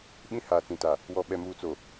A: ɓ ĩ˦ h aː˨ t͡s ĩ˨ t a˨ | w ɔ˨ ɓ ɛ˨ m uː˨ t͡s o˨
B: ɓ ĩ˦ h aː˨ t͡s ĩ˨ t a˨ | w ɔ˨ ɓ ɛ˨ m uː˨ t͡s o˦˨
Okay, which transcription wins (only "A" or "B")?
A